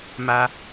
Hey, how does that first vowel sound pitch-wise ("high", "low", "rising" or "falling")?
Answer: high